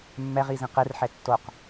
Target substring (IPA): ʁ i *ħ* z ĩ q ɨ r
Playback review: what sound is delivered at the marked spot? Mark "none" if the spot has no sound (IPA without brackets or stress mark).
none